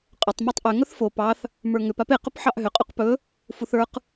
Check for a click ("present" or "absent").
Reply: absent